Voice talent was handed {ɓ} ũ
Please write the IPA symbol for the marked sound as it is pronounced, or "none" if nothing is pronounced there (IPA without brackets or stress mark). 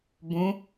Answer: b